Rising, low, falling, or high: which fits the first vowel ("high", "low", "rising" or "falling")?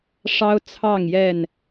high